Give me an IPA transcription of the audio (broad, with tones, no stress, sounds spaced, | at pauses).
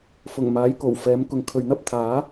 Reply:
f ʊ˨˩ ŋ m aː˨˥ j k o˨˩ w f ɛː˨˥ m k ʊ˨ ŋ kʰ ɵ˨ ɥ n̪ ɐ˥ p̚ t̪ʰ aː˨˥